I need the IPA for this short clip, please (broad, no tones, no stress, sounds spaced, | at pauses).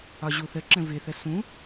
ɒ ʑ u θ ə ǁ ə̃ v ɪ θ ə s ũ